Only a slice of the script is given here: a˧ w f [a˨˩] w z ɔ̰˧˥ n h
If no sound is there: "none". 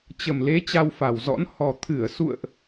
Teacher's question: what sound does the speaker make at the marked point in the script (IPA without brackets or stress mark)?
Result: a˨˩